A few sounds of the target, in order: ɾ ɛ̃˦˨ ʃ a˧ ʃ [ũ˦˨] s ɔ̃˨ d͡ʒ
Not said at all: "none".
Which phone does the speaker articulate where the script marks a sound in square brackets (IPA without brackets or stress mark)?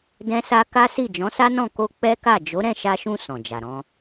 ũ˧